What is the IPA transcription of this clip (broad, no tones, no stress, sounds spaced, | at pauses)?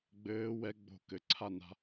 ɡ͡b ɘː w ɛ ɡ͡b o̤ k ɘ ǀʰ a n a̤